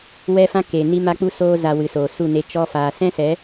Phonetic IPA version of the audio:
w ɛ˦ f ã˦ k e˨ n i˧ m a˧ k͡p u˧ s oː˧ z a˨ w ɨ˨ s oː˨ s u˦˨ n e˧ t͡ʃ ɔ˧ f aː˨ s ɛ̃˦ s ɛ˨˦

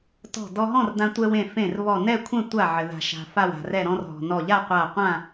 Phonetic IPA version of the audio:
t ɔ̤˧˩ d ɔ˧ ɦ ɔ̃˥˨ r d ã˧ tʷ ɛ˧ w ẽ˧˩ f ẽ˧˩ r β ɔ˧˩ n ɛ˥˨ kʷʰ ɛ̃˥˨ tʷ a˧˩ ʕ ɘ˩ ð a̤˩ ʃ a̤˩ f a˧˩ w a̤˩ r ɛ˧˩ ɾ ɔ̃˧ r ɦ ɔ̤˩ n ɔ˧˩ ʎ a˥˨ qʷ a˧˩ qʷ ã˥˨

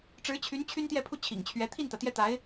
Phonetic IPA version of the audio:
ʈ͡ʂ ɻ̩˧˥ t͡ɕʰ y˧˥ n t͡ɕʰ y˥ n t̪ j ɛ˥˧ pʰ u˥˩ t͡ɕʰ ḭ˨˩ ŋ t͡ɕʰ ɥ ɛ˧˥ t̪ʰ i˥˩ n t̪ ä˩ t̪ j ɛ˥˩ t̪ a˧˥ ɪ̯

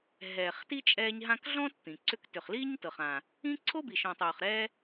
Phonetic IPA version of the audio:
ɦ ɛː˨ χ t i˥ t͡ʃʼ ɛː˦ ɲ ɦ ã˦ k ɮ ɔ̃ː˥ t t̪ ĩ˩ ǀ ʏ˦ k t ʏ˨ χ l iː˥ ɲ t ɤ˨ χ ã˨ | ĩ˥ ǀʰ o˥ b i˨ ʃ ɔ̃˨ tˤ oː˨ χ ɾ ɛ˦

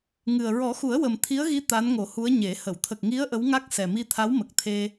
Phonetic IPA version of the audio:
ŋ ɨ˨˩ ə̯ ɹ ɔ˨˩˦ x u˨˩˦ ə̯ w ə˨˩ m t̪ʰ i˧˥ ə̯ ɣ i˧˥ t̪ a˧˥ n ŋ o˨˩˦ h u˧˥ ə̯ ɲ e˨˩˦ h ə˨˩˨ w t̪ʰ ə˨˩ k̚ ŋ i˧˥ ə̯ ʔ ə˧˥ w ŋ a˦˥ k̚ s ɛ˨˩ m i˧ t̪ʰ a˧˥ w m ə˨˩ k̚ t̪ʰ e˧

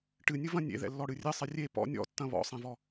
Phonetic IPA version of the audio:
ʈ ɨ nʲ ɨ v ɐ̃ nʲ ḛ ð ɛ̰ lː ɔ ɽ ɨ rʲ ɘ sˤ ɘ rʲ e p ɔ̰ nʲ ɔ̰ tː ɐ̃ β ɔ̰ sˤ ɛ̃ v ɔ

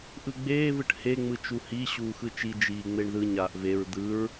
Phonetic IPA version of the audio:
ʔ ɯ ɡ͡b eː v ɯ ʈ h e ŋ͡m ɯ t͡ʃ u h i ɕ uː x ɯ t͡ʃ i d͡ʒ iː ŋ͡m e ɳ ð ɯ ɲ aː ʔ v e ɹ d̪ ɯ ɹ

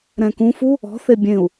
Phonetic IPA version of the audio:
ɾ ɛ̃ k ũ f u | ɔ̤ θ e bʲ ẽ u̯

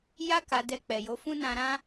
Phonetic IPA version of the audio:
j a˦ k a˧ d ɛ˧ k͡p ɛ˨ j o˨˦ f ũ˦ n ã˧ ɾ ã˦

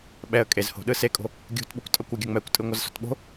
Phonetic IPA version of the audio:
ɓ ɛ ə̯ kʼ e z h o̤ ɗ ɯ s e kʼ o̤ | ɡʲ ṳ t ɓ u kʷ tʼ ʌ kʷ ɯ ɡʲ ʌ ŋ͡m ɛ kʷ tʼ ɯ ŋʷ ʌ z s o̤ t ɓ o̤

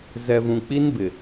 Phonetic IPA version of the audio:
z ɛ˨ v ũ˨ k͡p i˦ n b ɪ˨

